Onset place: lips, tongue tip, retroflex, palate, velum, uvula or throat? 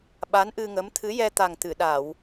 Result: lips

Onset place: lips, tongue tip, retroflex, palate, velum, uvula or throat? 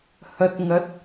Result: throat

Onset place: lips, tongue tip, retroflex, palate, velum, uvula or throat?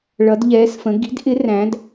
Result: retroflex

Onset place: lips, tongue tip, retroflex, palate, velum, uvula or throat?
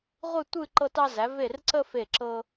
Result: uvula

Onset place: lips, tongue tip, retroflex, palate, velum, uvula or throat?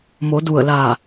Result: lips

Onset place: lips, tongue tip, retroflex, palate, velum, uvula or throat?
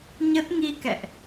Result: palate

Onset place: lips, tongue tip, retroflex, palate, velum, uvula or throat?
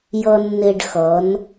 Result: palate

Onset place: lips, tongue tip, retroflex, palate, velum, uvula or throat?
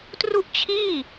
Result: tongue tip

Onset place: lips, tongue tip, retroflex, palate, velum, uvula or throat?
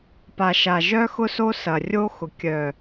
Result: lips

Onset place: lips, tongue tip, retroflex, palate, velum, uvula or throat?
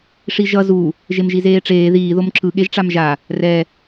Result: retroflex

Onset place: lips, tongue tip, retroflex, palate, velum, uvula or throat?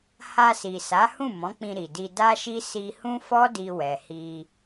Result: throat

